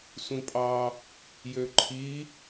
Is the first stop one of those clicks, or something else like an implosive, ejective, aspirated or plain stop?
ejective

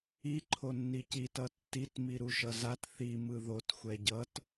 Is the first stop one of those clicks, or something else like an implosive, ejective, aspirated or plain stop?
click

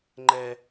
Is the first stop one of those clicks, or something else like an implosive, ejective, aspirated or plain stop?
click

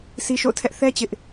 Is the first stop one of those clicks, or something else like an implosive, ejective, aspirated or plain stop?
aspirated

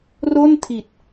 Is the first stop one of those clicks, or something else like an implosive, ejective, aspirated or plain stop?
aspirated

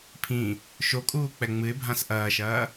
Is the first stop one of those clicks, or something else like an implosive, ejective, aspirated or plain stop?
aspirated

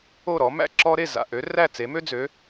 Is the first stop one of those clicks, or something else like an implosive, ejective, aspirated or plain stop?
click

